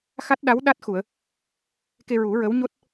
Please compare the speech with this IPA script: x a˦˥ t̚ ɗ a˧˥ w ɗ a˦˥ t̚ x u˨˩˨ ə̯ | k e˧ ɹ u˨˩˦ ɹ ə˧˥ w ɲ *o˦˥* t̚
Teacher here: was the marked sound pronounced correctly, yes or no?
yes